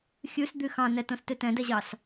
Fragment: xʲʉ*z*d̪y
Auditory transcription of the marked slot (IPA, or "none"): s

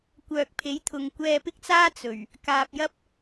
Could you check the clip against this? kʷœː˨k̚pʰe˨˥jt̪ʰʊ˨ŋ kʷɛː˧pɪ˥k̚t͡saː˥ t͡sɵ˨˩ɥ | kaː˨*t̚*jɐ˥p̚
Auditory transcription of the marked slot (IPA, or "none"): p̚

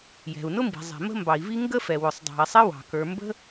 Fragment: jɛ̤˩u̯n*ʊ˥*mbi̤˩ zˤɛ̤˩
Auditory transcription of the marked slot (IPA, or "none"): ʊ˥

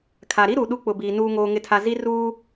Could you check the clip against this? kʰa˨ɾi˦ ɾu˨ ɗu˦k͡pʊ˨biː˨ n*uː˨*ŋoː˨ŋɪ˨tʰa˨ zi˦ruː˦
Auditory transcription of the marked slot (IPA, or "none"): uː˨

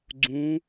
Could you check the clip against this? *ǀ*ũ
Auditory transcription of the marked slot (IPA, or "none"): ɡ͡ǀ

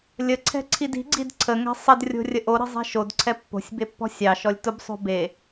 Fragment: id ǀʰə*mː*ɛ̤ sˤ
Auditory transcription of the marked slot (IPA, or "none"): ŋ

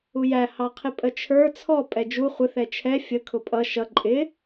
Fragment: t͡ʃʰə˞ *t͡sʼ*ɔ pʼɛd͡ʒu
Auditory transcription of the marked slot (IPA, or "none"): t͡sʰ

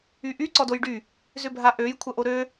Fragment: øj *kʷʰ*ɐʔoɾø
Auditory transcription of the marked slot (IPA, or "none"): kʷʰ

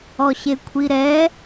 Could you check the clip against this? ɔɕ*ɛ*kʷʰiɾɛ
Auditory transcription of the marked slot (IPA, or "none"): e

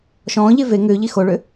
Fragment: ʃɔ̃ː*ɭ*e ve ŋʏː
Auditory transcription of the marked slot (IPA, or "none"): ʎ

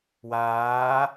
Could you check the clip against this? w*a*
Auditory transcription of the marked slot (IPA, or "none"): aː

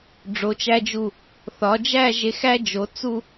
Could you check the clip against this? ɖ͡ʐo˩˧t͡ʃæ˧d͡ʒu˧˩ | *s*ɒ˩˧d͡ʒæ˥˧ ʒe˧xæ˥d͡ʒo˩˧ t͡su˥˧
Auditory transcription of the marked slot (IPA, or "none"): θ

